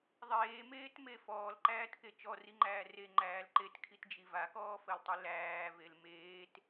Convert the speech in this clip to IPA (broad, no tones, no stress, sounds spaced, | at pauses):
ðˤ eː m eː t m e f ɔː l ǃ æː t k e t͡ʃ ɔ r i ŋ͡ǃ æː r e ŋ͡ǃ æː l ǃ e t kʰ i t d͡ʒ i v a k ɔː f ɜ l tˤ i l æː v e l m eː t